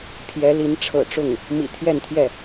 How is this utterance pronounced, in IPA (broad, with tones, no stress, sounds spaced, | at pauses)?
pʰ j ɛ˧˥ l i˧˥ n ʈ͡ʂʰ ɤ̰˨˩ ʈ͡ʂ ʊ˥˩ ŋ | m ḭ˨˩ t̪ʰ j ɛ˥˧ n t̪ʰ j ɛ˥˩